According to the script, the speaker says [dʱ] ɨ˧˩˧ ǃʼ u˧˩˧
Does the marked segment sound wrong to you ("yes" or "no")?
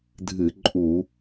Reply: no